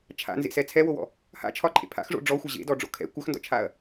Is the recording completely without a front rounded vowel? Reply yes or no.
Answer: no